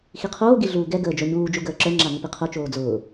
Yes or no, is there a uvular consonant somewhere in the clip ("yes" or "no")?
yes